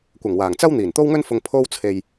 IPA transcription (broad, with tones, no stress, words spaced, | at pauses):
kʷɐ˨˩ŋwaː˨˩ŋ t͡sɐ˥w n̪iː˨˩nt̪o˥wŋɵ˥nfʊ˧ŋ pʰo˥w t͡sʰe˧j